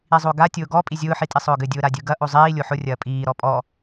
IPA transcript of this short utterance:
i zˤ o ɡ a tʲ ʊː ɡ ɔ pʼ i zʲ ʊː ħ i tʼ i sˤ ʊː ɡ ɘ dʲ ʊː ɾ a dʲ ɯ ɡ ɐ ʔ o zˤ iː lʲ o ħ ʊ rʲ ɐː pʼ iː ɾ ɔ pʼ ɔ

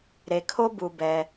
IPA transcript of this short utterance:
ɾ e˩ kʰ o˥ b u˩ b ɛ˩

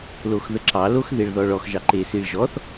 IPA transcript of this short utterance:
l o x ð ə ǁ ɑ l o x ð e ɭ ð ɔ ɭ ɔ x ʒ ɑ ǃ e s i ɭ ʒ ɔ θ

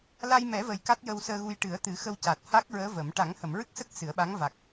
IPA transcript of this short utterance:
l a˧ j m ɛ˨˩˦ v ə˨˩ j k a˦˥ t̚ j ə˧ w s əː˧ ɣ u˧ j ʈ ɨ˨˩˦ ə̯ t̪ ɨ˨˩˦ x ə˧ w c a˨˩ t̚ h a˦˥ k̚ ɹ əː˧˥ v ə˨˩˦ m ʈ a˨˩˦ ŋ h ə˨˩˨ m ɹ ɨ˦˥ k̚ s ə˦˥ k̚ s ɨ˨˩˦ ə̯ ɓ a˧˥ ŋ v a˨˩ k̚

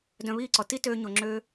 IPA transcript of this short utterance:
d œ̃˧ β iː˦˨ ǀ ɔ˨ t i˦ t øː˧ ɲ o˨ ŋ͡ǁ øː˧

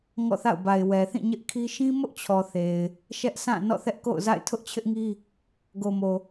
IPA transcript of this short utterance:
ŋ ɔ̰˦˨ θ a̰˦˨ ʊ̯ b a˨ ɪ̯ w ɛ˨ θ ĩ˦˨ ɲ ɪ˦ ʔ kʰ i˦ ʃ ĩ˦ m ʊ˦ ʔ t͡ɕʰ ɔ˨ θ e˨ ɪ̯ | ʃ ɛ˦ ʔ sʰ ã˦˨ n ɔ̰˦˨ θ ɛ˦ ʔ k o̰˦˨ ʊ̯ z a̰˦˨ ɪ̯ tʰ ʊ˦ ʔ t͡ɕʰ ɪ˦ ʔ ŋ i˦ | ɡ o˨ m o˨

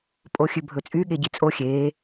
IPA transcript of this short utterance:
pʼ o xʲ ʉ bʱ ɵ t͡sʼ y ɠ e ɟ i t͡sʼ o xʲ e

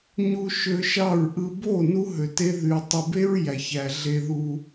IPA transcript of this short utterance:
ɲ u˧ ʃ ø˧ ʃ ɑ˦˨ ɹ ʔ ɯ˧ b o˦˨ n u˦ ɦ ø˨ t e˦ ð y˨ tˤ ɯ˨ b e˦ ɹ j æ˨ ç æ˨ ɮ e˧ ð u˧

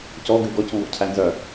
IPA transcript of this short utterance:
c ɔ ɡ ʉ ɡ ɔ c ŋ ɡ ɔ̰ cʰ æ n z œ

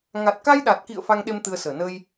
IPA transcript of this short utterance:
ŋ a˨˩ t̚ k a˧ j ɗ a˨˩ t̚ k ḭ˧˨ ə̯ f a˧ ŋ ɗ e˧ m t̪ ɨ˧ ə̯ s əː˧˩ n ə˧ j

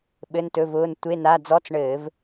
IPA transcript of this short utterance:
ɓ ɘ˧˥˧ n t ɵ˧˥˧ v ʊː˧˥˧ n tʷ e˧˥˧ n a˧˥˧ d͡z ɔ˧˥˧ t͡s ɳ ɘː˧˩˧ v

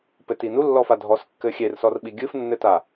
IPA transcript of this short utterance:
p ɘ t i n u lː ɔ f a dʱ ɔ s kː ɘ xʲ e r s ɔ r ɓ i ɡʲ ɨ f nː ɘ t a

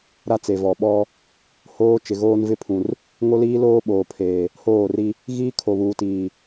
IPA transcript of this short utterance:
ɾ a˦ t͡s e˨ v ɔ˨ ɓ ɔ˦ | h oː˦ t͡ʃ ɪ˨ ɣ oː˦ n v ɪ˦ pʰ ũ˨ r | ŋ o˦ l iː˦ l oː˦ ɓ oː˨ pʰ eː˨ | h oː˦˨ r i˦ | ɣ iː˦ kʰ o˨ β uː˨ t iː˨

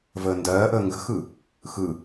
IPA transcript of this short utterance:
v əː n d ɜː ʔ əː ŋ ɡ ə̤ x ɯ | x ɯ

